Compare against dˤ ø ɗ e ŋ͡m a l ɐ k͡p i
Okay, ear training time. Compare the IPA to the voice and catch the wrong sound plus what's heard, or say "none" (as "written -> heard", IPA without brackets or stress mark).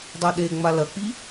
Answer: none